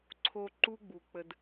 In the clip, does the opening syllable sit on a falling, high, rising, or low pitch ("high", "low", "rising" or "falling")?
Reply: low